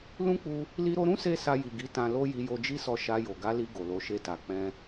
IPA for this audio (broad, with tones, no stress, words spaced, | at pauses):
lũ˦k͡pu˧ | li˧ɾo˧ɾũ˦se˧ sa˧ji˨ɡi˨˦ tã˧lo˦ ji˧jo˧d͡ʒi˦sɔ˧ ʃa˧jo˨ ɡa˨˦li˧ ɡo˨lo˨˦ʃe˧ta˨ k͡pɛ̃˧